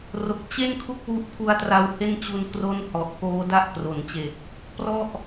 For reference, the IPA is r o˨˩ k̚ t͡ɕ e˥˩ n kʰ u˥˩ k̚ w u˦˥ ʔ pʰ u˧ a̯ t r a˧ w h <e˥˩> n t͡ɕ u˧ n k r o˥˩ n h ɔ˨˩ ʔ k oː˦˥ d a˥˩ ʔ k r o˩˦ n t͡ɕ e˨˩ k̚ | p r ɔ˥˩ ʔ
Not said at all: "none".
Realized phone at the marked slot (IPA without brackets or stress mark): e˥˩